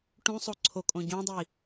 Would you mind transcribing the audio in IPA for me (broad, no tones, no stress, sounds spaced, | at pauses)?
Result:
ʈ ũ sˤ o ǀʰ o kʼ õ ɟ õ dˤ i